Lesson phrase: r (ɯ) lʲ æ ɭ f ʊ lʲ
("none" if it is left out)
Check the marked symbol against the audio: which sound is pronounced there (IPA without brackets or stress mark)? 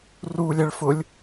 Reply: u